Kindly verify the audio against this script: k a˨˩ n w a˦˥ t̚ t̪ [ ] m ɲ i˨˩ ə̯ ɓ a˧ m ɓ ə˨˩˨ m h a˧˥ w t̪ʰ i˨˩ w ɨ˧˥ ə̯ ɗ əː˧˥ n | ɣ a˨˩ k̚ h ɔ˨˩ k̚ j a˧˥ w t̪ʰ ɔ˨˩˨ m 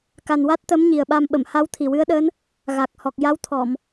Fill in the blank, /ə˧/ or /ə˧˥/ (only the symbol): ə˧˥